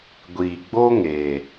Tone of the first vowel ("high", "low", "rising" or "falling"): low